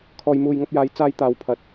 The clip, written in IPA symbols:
kʰ ɔː˨ j m uː˨ j ŋ ɐ˧ p̚ j aː˨˧ j t͡s aː˥ j t̪ aː˨˧ w pʰ ɐ˨ t̚

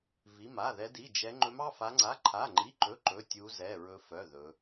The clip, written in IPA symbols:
v i˧˥˧ m a˧˥˧ ð ɛ˦˥ d i˧˥˧ d͡ʒ ɛ˦˥ ŋ͡ǃ ɵ˦˥ m ɑ˧˥˧ f a˦˥ ŋ͡ǀ a˧˥˧ ǃʰ a˧˥˧ ŋ͡ǃ i˧˥˧ ǃ ɵ˧˥˧ ǃ ɵ˧˥˧ tʲ u˦˥ z ɛ˧˥˧ ɹ ɵ˦˥ f œ˧˥˧ ð ɵ˦˥

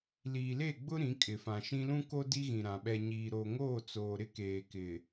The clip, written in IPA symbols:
l iː˨ l e˦˨ ɡ͡b ʊ˦ ɾ ĩ˨˦ kʼ ɪ˨ f ã˨ ʃ ĩ˦ l ũ˦ k o˦ d i˦ ɣ ĩ˨ ɾ ã˨ ɓ ɛ˨ ɲ iː˨ ɾ oː˨ ŋ oː˦˨ t͡s oː˨ ɾ ɪ˦ k eː˨ k ɪ˨

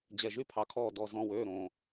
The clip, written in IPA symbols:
d͡ʑ ɛ˨˩ ʒ y˥˩ pʰ ɑ˩˧ kʰ ɔː˨˩ d ɔ˨˩ z ɔ̃˨˩ w øː˥˩ ɾ õ˨˩

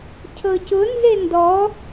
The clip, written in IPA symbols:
cʰ ɤ c ʊ n z e n d ɔ

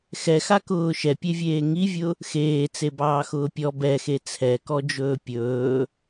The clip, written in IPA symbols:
x ɛ x a k ʊː ʃ ɛ pʲ e vʲ eː ŋ i vʲ ʊ | x eː t͡s e b ɑː x ʊː pʲ ɔ b ɛ x e t͡sʰ ɛ k ɔ d͡ʒ ɵː pʲ ɵː

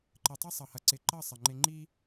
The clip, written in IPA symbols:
ǃ ɘ˨ tˤ e˦ sˤ ʌ˨ h ɐ˨ ǀ ɪ˨ ǃ ʌ˦˨ sˤ ə˨ ŋ͡ǃ ɪ˦ ŋ͡ǃ i˦

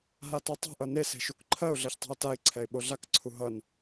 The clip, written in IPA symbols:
ɦ a t o tˤ e̤ ʔ ʌ n e s e̤ ʃ u k ǃʰ ɜ ʊ̯ ɮ ɜ ç tˤ ɛ̤ ʊ̯ t a ɪ̯ ǀʰ ɛ ɪ̯ ɓ o ɮ a k ǀʰ u ɦ ʌ n

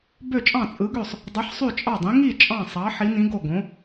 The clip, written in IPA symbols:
b ø˥˩ t͡ʃʼ ɑ̃˥˩ t͡sʼ ɯ˨˥ ɡ ø˥˩ sˤ | dˤ ɯ˨˥ ħ sˤ y˥˩ t͡ʃʼ ɑ˥˩ dˤ ĩ˨˥ ŋ i˥˩ t͡ʃʼ ɑ̃˥˩ sˤ ɑ˨˥ ħ i˨˥ n ĩ˨˥ ɡ o˥˩ ɡ õ˨˥

